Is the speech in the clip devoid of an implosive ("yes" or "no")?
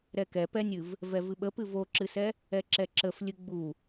no